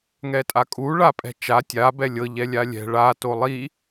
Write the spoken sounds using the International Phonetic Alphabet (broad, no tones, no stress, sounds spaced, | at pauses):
ŋ ɛ tʼ a kʼ u ɭ a pʼ ɛ̤ t͡ʃ a tʲ a b ɛ lʲ ɤ ʎ ɛ lʲ a lʲ ɛ̤ ɭ a t o lˠ i